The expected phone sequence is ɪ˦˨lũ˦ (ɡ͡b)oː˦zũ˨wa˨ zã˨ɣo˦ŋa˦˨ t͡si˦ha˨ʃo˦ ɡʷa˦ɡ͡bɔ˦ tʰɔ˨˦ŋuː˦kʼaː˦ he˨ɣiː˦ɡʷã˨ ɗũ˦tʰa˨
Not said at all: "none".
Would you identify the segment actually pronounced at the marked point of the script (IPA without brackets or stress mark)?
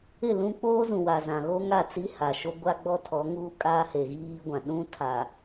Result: k͡p